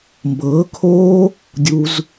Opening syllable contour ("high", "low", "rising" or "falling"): rising